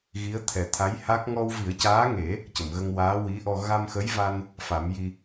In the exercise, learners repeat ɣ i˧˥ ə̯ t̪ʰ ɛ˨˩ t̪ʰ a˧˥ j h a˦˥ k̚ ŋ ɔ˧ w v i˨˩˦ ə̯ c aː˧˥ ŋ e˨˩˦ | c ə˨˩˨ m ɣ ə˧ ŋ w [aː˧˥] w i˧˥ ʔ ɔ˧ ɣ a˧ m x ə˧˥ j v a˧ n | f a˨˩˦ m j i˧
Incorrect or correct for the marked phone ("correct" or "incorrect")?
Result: correct